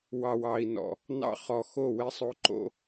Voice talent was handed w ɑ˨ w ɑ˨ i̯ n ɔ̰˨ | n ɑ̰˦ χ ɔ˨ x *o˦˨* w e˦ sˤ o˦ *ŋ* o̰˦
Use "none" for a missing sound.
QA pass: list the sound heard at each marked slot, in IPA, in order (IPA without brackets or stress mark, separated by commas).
o˦˨, ǃ